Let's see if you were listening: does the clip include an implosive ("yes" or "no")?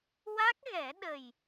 yes